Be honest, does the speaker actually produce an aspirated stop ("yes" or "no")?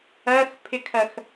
yes